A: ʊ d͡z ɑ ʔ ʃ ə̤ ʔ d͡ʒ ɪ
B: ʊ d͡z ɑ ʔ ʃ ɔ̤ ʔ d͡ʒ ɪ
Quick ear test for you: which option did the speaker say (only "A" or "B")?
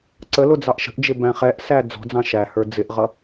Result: A